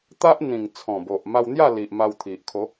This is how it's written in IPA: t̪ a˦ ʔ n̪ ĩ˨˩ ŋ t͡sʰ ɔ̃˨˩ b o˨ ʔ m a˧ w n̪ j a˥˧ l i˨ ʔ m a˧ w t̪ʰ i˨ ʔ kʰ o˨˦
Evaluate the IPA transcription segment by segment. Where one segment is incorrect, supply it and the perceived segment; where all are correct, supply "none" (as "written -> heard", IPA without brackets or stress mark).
none